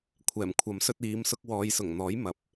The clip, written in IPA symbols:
kʷʰɛː˨˩mkʷʰɐ˨˥msɵ˧t̚ iː˨˧m sʊ˧k̚wɔː˨˧jsʊ˨˩ŋn̪ɔː˨˥j mɐ˨p̚

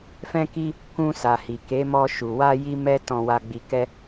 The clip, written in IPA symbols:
fɛ̃˧ki˧ | kũ˧sa˨hi˨ ke˨˦mɔ˧ ʃu˨wa˧ ji˦mɛ˦ tɔ̃˧wa˧ ɡ͡bi˧kɛ˦

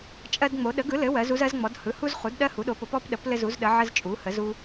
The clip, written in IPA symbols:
t͡ʃʼɜ˦dŋ͡mo˩˥ ɗə˩˥ɡɯ˩˥lɘ˩˥ wɜ˩˥zu˦zɜ˩˥zŋ͡mɔ˩˥d hɯ˩˥hu˦zχu˩˥d ɗɜ˦hu˩˥ɗo˩˥po˩˥p ɔ˦pɗə˩˥p lɘ˦zu˩˥zɗə˩˥ ʕə˦zt͡ʃʼu˩˥hə˩˥zu˦

